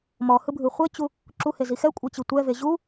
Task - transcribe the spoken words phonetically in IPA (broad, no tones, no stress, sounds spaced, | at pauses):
m ɔ h ɯ bʱ ɯ χʷ e t͡ɕ u | ǁ u h e z i x ɛ kʷʼ e t͡ɕ i tʷ ɛ v e ʑ u